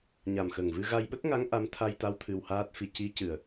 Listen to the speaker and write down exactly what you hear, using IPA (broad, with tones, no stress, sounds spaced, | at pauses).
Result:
ɲ a˨˩ m x ə˨˩ ŋ v ɨ˧ ɣ a˧ j ɓ ə˦˥ k̚ ŋ a˧˥ ŋ ʔ a˧˥ m t̪ʰ a˧ j t̪ a˧˥ w t̪ʰ ɨ˧ w h aː˦˥ t̚ f i˧ c i˧˥ c ɨ˨˩ ə̯